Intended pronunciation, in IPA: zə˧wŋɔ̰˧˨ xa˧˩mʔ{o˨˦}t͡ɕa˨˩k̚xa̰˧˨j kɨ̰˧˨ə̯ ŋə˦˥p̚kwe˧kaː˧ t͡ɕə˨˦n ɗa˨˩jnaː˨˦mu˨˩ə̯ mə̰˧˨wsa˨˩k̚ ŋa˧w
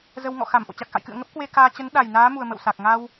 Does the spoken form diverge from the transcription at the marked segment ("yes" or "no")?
yes